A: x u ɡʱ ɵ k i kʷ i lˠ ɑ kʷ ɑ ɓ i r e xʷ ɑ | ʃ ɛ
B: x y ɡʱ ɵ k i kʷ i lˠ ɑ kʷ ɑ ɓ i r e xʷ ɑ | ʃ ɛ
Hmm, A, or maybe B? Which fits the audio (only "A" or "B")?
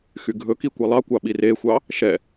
B